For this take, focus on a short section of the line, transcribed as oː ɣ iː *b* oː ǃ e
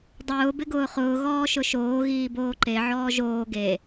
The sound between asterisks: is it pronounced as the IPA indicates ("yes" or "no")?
yes